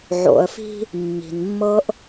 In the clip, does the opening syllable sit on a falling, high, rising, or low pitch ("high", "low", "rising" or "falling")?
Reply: low